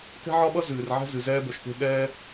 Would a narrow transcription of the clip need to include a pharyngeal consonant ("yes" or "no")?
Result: yes